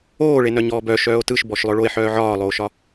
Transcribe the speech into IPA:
oː ɭ e n œ ɲ ɔː b œ ʃ œː o̯ t ɯ ʃ b ɔ ʃ lˠ œ ɭ o e̯ ħ œː ʕ ɒː lˠ oː ʃ ɒ

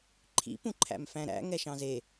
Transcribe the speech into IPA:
ǃʰ ḭ p ũ ǃʰ æ̰ m f æ̃ ɾ æ̰ ŋ ɛ ʃ ɑ̃ z e

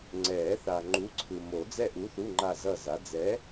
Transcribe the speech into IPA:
ŋ͡ǀ ɛ˨˩˦ θ a˨ ŋ͡ǃ u˨˥ ǀʰ ɯ˨ m o˨˩˦ d͡z ɛ˦˨ ʔ u˨˥ θ u˧˥˧ ŋ͡ǃ a˦˨ z ʌ˦˨ z a˨˥ d͡z ɛ˨˥

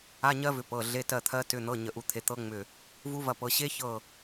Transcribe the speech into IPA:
a˧˥˧ ɲ ɜ˦˥ v ʏ˨˦ p ɤ˩˧˩ ɮ e˧˥˧ t ɜ˦˨ t̪ʰ ɜ˦˥ t ʏ˧˥˧ n̪ ɤ˧˥˧ ɲ ə˦˨ ʔ u˦˥ t̪ʰ e˦˥ t̪ ɤ˦˥ ŋ͡m ʏ˦˨ | v u˦˥ v ɐ˦˨ p ɤ˨˦ ɕ e˦˥ ç ɤ˦˨

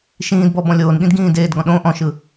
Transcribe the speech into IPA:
ʃ ĩː d b ɔ b ɔ̃ lʲ oː n ɠ ĩ d ɡ ĩː d eː d ɡ ɔ̃ ɗ õ ʔ ɔ̃ ʃ ɯ

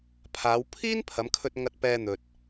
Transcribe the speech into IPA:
pʰ aː˨˧ w pʰ iː˥ n pʰ ɐ˨˧ m kʰ ɵ˧ t̚ ŋ ɐ˧ t̚ p ɛː˧ n̪ ɵ˨ t̚

